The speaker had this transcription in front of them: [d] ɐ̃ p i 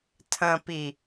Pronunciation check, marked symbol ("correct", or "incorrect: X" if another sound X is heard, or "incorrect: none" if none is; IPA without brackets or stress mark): incorrect: tʰ